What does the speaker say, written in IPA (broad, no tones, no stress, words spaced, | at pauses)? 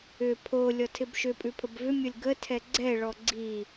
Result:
ʏ pʰo lʲɔtʰɪbʃʏpʼʉ pʰəbvʏmʲɔlʲ ɡətʰɛ ɡ͡ǀɛɭɔ ɡ͡ǀi